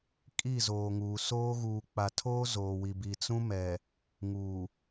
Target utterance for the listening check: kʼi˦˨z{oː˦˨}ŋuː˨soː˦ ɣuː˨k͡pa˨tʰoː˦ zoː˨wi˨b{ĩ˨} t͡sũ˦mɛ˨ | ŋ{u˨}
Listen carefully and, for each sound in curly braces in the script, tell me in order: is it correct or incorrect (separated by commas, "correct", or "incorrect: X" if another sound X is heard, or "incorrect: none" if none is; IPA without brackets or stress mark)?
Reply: incorrect: oː˨, incorrect: i˨, incorrect: uː˨